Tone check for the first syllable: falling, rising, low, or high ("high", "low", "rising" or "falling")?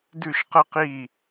falling